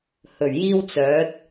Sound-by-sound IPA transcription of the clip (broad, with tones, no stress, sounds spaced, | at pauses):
h ɵ˨˩ ɥ j iː˥ w t͡s œː˨˥ t̚